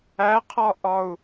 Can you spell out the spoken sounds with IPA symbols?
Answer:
æqʰɒʔɒu̯

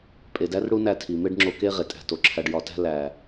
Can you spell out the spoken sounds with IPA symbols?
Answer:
pʼe˨dæ˦rɽu˦ næ˦˨tʰi˨me˦ɖŋ͡ǁo˧ ke˦ ʁe˨tʼæ̤˦to˨ǁʰæ˦ɖ jɒ˧tæ̤˦ læ˨

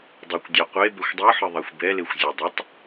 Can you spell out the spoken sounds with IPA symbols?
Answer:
dˤekʷdʲa qʷe bɛxʷdˤɯħɯ ðˤaxʷbɛlexʷ zʲodˤotˤ

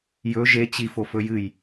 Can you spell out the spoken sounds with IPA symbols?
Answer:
jɵ ʒe t͡ɕi fofɵjɨj

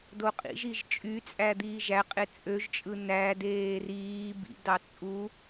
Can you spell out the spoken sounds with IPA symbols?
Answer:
doqʼḭʒiʒ t͡ʃʼyt͡sʼæ d̪iːʒæqʼe t͡sʼøʒt͡ʃʼɯ nædeː riː bḭdɑ t͡sʼu

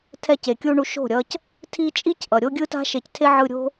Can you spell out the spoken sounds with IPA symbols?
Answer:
tʰɛ˧ce˨kʲu˧ɳu˧ ʃo̤˦˨ ɾʲʌ˧c | tʰi˦ t͡ʃʼi˦c ʔʌ˨ɾʲo˦ɡʲɯ˦ta̤˦ ʃe˧ctʰe˦ ʕɯ˧ɾʲo̤˦

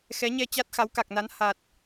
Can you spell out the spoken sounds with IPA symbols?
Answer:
xɛ˨˦ɲɛ˧ t͡ɕa˦˥t̚xa˨˦wka˨˩k̚na˨˦n ha˨˩t̚

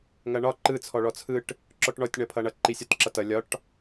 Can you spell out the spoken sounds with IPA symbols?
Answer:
ŋɐɳɒ ǃɯ t͡sʰɔɭɔt͡sʰɯʈ | ǁɔʈɳɔtʲ ɳʌpʰʌɳʌ ǃisʲɒtǁʌtʌ lʲɒʈ

